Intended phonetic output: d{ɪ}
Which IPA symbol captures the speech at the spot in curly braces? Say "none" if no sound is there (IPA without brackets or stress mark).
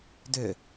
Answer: ʏ